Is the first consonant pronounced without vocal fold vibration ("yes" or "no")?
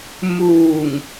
no